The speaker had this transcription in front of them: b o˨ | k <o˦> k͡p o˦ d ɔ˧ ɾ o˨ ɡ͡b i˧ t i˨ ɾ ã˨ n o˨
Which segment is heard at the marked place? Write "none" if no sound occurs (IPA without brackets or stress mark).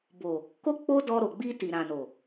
o˦